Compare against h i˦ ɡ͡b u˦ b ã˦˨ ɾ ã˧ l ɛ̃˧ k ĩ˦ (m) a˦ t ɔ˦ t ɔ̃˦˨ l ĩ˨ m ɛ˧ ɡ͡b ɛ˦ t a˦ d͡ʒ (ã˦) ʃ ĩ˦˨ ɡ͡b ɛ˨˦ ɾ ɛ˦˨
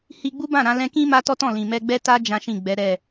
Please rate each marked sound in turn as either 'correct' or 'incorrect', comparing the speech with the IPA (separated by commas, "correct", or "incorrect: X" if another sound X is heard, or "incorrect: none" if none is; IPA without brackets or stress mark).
correct, correct